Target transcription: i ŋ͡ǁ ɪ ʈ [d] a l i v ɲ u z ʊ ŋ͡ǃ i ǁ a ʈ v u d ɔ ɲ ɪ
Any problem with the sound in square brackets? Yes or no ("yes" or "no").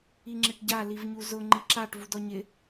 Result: yes